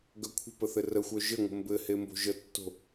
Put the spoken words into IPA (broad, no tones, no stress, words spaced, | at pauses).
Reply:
ɡœkʷʰə̤pə θɘrəxʷœ ʒɘŋʷə̤ mbɘhe mbo̤ʒətːo̤